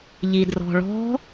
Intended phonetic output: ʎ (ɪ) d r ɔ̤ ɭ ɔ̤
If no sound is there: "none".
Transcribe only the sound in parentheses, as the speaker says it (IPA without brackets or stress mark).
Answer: i